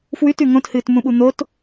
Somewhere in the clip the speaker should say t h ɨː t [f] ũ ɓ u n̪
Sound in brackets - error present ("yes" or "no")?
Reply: yes